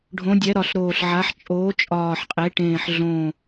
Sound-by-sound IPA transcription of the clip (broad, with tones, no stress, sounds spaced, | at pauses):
ɖʱ õ˩˧ dʲ ɛ˩˧ ɾ ɒ˨˩ ɬ ɾ oː˨˩ ɬ ʕ a˩˧ ħ t͡ʃʼ oː˩˧ t͡ʃʼ ɒː˨˩ ħ qʼ e˩˧ ʈ ẽː˨˩ ħ ɮ õ˨˩